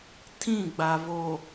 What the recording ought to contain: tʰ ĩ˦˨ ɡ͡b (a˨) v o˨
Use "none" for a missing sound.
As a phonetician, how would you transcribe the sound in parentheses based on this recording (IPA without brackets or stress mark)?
a˨